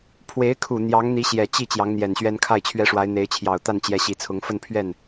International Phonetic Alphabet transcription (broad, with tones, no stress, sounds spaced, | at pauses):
pʰ w e˧˥ ɪ̯ kʰ u˨˩ n̪ j ɑ˧˥ ŋ n̪ i˧˥ ɕ j ɛ˨˩ t͡ɕ i˥˩ t͡ɕ j ɑ˧˥ ŋ n̪ j ɛ˨˩ n ɕ ɥ ɛ˥ n kʰ a˥˩ ɪ̯ t͡ɕʰ ɥ ɛ˥ ʂ w a˧˥ ɪ̯ n̪ e˧˥ ɪ̯ t͡ɕʰ j ɑ˨˩ ʊ̯ t̪ a˥˩ n t͡ɕ j ɛ˧˥ ɕ i˨˩ t͡sʰ ʊ˧˥ ŋ f ə˥˧ n pʰ ɥ ɛ˥˩ n